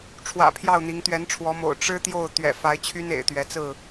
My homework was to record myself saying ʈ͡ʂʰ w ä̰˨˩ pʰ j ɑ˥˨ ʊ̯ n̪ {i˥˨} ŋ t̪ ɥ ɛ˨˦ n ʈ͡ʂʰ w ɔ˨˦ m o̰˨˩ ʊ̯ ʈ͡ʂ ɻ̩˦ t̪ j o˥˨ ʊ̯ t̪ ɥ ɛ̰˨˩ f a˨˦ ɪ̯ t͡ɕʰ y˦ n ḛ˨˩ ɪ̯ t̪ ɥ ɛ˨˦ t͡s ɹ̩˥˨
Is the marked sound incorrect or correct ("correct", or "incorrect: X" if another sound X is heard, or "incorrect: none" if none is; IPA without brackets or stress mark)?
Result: incorrect: i˨˦